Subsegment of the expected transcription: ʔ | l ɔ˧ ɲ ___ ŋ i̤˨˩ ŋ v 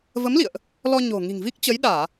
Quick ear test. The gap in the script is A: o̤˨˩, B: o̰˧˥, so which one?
A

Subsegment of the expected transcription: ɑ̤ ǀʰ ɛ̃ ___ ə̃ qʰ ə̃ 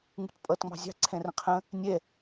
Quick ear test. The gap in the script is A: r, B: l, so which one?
A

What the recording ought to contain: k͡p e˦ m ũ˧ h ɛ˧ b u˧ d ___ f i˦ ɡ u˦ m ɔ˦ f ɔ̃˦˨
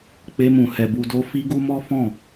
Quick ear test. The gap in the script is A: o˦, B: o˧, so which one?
A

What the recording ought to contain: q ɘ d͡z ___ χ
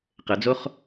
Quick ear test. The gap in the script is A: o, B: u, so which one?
A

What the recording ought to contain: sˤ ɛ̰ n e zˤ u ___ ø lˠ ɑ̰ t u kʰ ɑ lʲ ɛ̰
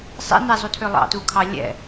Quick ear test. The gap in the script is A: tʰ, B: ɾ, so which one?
A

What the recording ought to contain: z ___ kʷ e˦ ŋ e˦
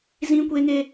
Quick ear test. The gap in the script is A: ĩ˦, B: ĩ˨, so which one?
A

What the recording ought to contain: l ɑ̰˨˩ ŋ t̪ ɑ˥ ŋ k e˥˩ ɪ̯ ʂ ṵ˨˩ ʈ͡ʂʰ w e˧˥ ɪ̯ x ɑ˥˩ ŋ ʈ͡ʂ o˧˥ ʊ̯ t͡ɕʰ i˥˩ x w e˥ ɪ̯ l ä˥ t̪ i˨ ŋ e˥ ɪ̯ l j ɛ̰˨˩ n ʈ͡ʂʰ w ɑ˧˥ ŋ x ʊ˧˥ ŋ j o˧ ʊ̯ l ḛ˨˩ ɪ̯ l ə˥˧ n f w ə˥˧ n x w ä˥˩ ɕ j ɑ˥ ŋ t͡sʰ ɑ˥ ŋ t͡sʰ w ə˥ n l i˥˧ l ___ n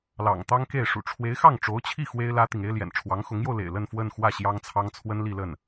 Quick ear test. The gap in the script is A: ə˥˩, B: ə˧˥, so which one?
A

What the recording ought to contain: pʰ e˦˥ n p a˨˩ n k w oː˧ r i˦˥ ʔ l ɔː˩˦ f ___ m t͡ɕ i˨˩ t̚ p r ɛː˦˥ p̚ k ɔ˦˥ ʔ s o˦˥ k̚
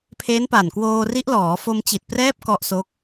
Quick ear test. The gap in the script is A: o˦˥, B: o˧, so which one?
B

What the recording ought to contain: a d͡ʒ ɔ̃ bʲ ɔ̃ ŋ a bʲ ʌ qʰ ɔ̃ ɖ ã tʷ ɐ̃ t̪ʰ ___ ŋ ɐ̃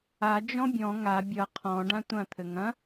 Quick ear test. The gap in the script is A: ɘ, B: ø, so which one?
A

